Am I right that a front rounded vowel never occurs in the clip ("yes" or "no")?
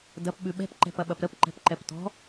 yes